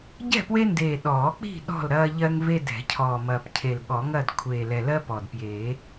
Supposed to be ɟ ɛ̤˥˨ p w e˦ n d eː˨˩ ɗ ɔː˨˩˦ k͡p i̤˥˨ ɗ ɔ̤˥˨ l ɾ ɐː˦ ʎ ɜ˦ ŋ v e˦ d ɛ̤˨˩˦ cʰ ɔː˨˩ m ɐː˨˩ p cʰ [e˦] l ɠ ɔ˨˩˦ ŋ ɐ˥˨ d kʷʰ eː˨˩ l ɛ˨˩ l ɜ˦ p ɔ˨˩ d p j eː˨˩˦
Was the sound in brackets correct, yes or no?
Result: no